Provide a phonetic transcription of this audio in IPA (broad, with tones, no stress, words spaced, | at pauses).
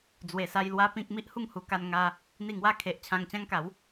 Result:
d͡zwe˨˩sa˧j lwa˦pĩ˦k̚ mi˦ʔhu˥˧ŋhu˧ka˧n ŋa˧ | n̪i˥˧ŋwa˥˧ kʰe˨ʔ t͡ɕʰã˧ŋt͡ɕã˦ŋka˨˦w